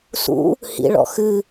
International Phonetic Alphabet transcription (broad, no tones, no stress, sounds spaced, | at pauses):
s ṵ | h ḭ ɭ ɔ̰ x ɨ